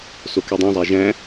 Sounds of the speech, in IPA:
sokydˤõzˤæ ʒæ̃

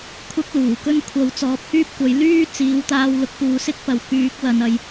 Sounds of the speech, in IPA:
kʷʰɐ˥k̚luː˨˩kɵ˥n kʷʰɐ˨˥w t͡sɔː˨˥p̚hyː˥p̚kʷɐ˨˥j lyː˥ t͡siː˨˥wt̪aː˧w lʊ˧k̚puː˨˥sɪ˥k̚pɐ˨˧w kyː˨˥k̚wɐ˨nɐ˨j

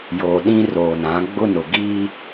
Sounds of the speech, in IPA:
joː˨ɗĩ˦roː˨nã˨˦ ɡ͡bʊ˦nʊ˨ ɡiː˦

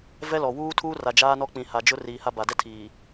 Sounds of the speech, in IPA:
vɛ˦lɔ˨ wuː˦ tʰuː˦ra˨ d͡ʒaː˦nɔ˦k͡pĩ˨ ha˨d͡ʒʊ˦ riː˨ha˦ ba˨dɛ˦tʰiː˨

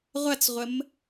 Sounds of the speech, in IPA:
ʁʷɐt͡sʁʷəm

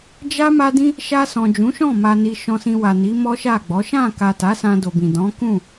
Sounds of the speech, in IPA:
d͡ʒa˦ ma˦dĩ˦ | ʃa˧sɔ̃˨ d͡ʒũ˨˦ʃɔ̃˦˨ ma˧ni˧ʃɔ̃˧sĩ˧ wa˨ni˨˦ mɔ˦ʃa˦˨ɡ͡bɔ˨˦ ʃã˦˨ka˨ ta˨˦sã˧ do˨bĩ˨dɔ̃˨˦kũ˦˨

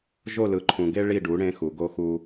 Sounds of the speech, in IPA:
ʒo˦˨lɯ˨ǃʰũ˨ɡe˦ ɭi˦˨ɖu˨˦ ɽẽ˦xu˨ ɡo˦xu˦

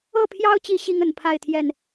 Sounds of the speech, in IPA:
ɤ˥˨pʰjɑ˦ʊ̯t͡ɕi˨˦ ɕi˦ŋə˨˩npʰa˥˨ɪ̯ t̪ʰjɛ˥˨n

